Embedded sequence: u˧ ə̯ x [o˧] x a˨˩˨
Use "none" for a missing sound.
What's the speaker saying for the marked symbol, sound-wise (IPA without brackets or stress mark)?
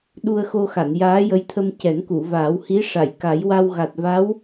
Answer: o˧